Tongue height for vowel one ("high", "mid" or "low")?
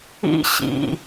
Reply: high